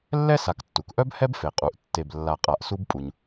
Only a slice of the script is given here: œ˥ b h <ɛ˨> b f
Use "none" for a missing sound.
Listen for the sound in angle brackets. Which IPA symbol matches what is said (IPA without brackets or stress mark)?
ɛ˥